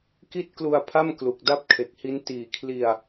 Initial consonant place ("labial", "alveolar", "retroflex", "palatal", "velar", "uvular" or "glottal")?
velar